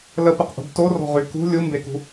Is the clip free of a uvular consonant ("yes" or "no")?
no